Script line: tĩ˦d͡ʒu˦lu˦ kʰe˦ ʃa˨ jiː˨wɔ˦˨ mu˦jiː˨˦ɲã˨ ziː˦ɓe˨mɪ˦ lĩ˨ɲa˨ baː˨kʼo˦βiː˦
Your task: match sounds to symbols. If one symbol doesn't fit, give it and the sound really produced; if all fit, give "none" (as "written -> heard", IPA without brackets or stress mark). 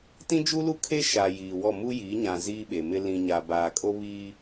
none